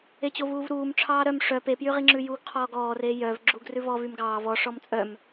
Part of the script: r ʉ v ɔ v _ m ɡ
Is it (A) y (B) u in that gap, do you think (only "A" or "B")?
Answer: A